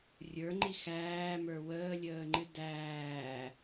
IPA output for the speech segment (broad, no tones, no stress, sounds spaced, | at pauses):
rʲ ə˞ ŋ͡ǃ i x æː m ə˞ w əː lʲ əː ŋ͡ǃ ɨ d æː